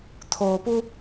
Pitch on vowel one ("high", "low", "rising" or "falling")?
low